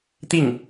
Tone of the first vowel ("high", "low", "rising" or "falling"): falling